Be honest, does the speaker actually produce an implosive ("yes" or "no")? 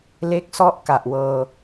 no